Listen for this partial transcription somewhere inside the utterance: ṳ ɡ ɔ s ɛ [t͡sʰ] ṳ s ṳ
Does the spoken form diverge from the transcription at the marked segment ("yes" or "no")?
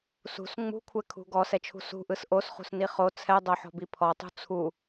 yes